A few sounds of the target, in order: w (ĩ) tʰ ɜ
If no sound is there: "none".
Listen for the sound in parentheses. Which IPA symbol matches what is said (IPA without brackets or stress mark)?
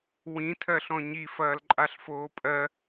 ĩ